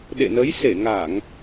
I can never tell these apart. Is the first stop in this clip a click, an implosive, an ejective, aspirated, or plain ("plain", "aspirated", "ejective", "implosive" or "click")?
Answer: implosive